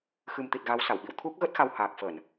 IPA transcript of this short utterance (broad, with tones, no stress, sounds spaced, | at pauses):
x ɨ˨˩ m t̪ i˨˩ t̚ ɣ a˨˦ w s a˧˩ w ɓ ḭ˧˨ w t̪ʰ u˦˥ k̚ ɣ ə˦˥ t̚ x a˧ w h aː˨˩ k̚ f ə˧˩˨ n